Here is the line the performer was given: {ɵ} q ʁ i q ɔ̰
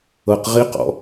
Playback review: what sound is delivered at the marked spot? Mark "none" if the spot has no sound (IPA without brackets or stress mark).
ɤ